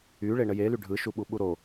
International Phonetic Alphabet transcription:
y ɭeɳəjely ɖʱɯʃu ɓuɓuɾo

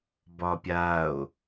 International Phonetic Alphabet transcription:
bɒpʲao̯

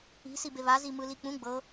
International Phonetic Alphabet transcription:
i̤sibe βazi mɯlik͡pũ ɡ͡bɤ

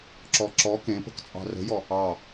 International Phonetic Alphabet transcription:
ǁɔǁɔ kẽpə̤k t͡sʼɑ̤rə̤jɔ | ɑ

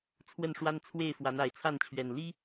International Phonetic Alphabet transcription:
t͡sʰwə˥˨nʂwa˦n t͡sʰwe˥˨ɪ̯ fwa˨˦na˨˦ɪ̯t͡sʰa˥˨nt͡ɕʰɥɛ˨˩n li˦

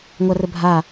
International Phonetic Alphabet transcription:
ŋʷarəbʱa

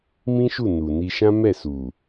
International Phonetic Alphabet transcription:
mĩ˦ʃu˦˨ nu˨ni˧ʃã˦ mɛ˦˨su˨

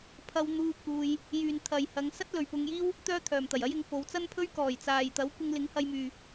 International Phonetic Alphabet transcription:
pʰɐ˧wn̪uː˧ kuː˧j | jyː˨nt̪ʰɐ˨jhɐ˨˧ŋ sɐ˥t̚lɵ˨ɥpʊ˧ŋjiː˥w | t̪œː˥t̪ʰœː˨mt̪ɐ˨˩jɐ˥j ɪ˨˧ŋfo˨˧wt͡sɐ˥npʰɵ˥ɥ kɔː˨˩jt͡saː˨jt̪ɐ˨˥w kʷɪ˧ŋlɪ˨˥ŋhɐ˧jmyː˨

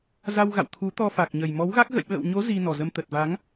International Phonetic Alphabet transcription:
za˧wɣa̰˧˨w t̪ʰu˨˦t̪ɔ˧fa˨˩k̚ɲə˨˩j mɔ˨˦wɣa˦˥k̚ ɣə̰˧˨jɓə̰ː˧˨wɲo˨˦ zi˧nɔ˨˩zə˧m t̪ə˨˩t̚va˨˦ŋ

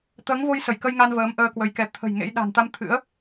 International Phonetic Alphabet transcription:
t̪əː˨˦ŋvo˧j sə˧˩jkə˧jŋa˧n vəː˨˦mʔəː˧kwə˨˦jkɛ˨˦ t̪ʰə̤˨˩j ŋḛ˧˥j ɗa̤˨˩nt̪a˧mt̪ʰɨ̰˧˥ə̯

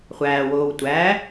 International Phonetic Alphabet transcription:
χʷæːwoːw tʷæ

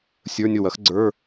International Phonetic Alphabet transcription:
sʲə˞˧˥˧nʲo˥˩wɐ˨˥x ɡ͡ǀə˞˧˥˧

